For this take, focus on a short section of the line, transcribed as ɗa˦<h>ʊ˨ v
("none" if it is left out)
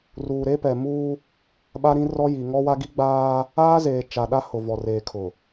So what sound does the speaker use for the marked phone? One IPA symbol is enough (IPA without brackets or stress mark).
h